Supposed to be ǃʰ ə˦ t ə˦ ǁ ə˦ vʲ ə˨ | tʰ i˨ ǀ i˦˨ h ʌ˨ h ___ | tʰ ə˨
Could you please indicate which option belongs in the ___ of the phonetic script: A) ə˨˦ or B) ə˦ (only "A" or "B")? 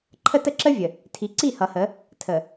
A